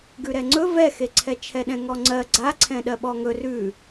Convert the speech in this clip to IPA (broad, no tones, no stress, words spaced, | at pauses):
ɡʉɾɛŋ͡ǀɵ vɛxeǀʰɛ t͡ʃʰɛɗɛ̃ŋɔŋ͡ǀɜ ɡ͡ǀaǀʰɛ̃ ɗɜɓɔŋɵ rʉ